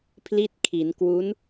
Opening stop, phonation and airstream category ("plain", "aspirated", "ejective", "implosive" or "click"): aspirated